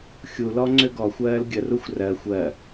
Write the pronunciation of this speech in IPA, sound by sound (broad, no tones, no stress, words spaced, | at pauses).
xʲulɔ ŋ͡ǀøɡɔxʷɜːl ɡʲəruxʷ rɜ xʷɜ